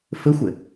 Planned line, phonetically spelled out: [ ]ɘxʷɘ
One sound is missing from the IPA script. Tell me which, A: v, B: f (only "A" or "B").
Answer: B